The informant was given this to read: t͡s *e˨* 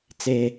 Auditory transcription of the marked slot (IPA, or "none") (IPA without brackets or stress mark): e˦